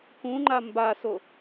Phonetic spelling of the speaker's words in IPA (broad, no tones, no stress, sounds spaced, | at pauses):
k ũ ŋ͡ǃ a m b a s o